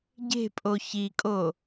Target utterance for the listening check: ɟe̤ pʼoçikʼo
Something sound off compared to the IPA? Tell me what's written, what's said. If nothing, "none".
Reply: none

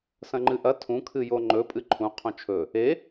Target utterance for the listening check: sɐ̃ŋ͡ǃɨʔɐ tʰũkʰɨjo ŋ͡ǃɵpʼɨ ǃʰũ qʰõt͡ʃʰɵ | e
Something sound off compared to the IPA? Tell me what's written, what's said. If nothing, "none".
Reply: none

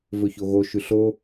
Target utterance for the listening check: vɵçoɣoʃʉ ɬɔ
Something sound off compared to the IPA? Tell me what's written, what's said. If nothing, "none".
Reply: ɔ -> o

